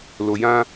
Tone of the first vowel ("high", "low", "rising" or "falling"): low